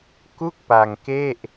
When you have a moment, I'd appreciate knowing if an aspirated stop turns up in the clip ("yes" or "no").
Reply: no